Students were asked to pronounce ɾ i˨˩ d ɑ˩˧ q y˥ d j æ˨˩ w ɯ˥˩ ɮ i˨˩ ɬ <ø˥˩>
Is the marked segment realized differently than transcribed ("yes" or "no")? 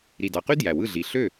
no